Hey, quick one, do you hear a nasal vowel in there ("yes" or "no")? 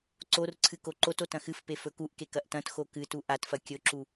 yes